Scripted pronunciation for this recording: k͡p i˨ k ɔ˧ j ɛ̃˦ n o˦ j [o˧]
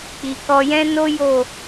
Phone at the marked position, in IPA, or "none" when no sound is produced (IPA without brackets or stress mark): o˦˨